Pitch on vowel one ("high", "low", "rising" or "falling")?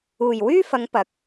low